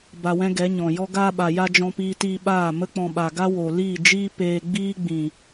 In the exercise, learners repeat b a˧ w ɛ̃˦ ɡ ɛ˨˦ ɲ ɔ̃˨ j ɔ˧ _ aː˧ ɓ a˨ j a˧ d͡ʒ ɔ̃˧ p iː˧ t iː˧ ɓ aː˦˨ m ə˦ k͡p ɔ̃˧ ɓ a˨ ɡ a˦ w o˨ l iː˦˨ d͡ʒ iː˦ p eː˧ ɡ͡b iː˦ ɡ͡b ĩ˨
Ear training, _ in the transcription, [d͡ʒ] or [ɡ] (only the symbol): ɡ